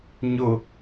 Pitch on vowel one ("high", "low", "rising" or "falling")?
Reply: low